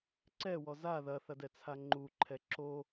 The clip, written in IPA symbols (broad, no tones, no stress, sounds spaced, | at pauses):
ǀ ɛ w ɔ z a ð ɐ θ ɐ d ɛ t͡sʰ a ŋ͡ǃ u ǃʰ ɛ ǁ o